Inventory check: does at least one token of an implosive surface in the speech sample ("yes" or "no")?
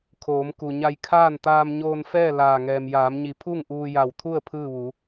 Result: no